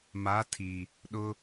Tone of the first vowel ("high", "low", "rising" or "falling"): rising